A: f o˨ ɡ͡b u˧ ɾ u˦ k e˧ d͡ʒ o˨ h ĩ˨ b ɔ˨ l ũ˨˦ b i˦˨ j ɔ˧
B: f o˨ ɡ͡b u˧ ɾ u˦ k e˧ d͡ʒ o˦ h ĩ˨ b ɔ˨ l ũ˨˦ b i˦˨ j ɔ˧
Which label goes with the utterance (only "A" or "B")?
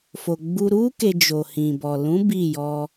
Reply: A